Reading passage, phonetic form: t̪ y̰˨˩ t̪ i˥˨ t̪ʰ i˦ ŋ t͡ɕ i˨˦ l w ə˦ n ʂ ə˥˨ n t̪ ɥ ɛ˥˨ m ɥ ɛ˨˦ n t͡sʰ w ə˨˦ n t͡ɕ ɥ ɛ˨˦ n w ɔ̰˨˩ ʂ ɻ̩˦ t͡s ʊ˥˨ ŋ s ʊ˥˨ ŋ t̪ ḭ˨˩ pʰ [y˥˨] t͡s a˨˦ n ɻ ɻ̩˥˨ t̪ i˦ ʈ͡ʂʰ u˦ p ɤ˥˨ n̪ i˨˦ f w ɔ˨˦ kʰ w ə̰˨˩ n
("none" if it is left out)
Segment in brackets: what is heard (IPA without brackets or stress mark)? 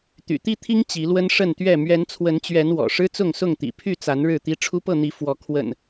y˥˨